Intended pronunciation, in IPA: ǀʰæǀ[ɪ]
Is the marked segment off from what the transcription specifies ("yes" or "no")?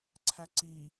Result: yes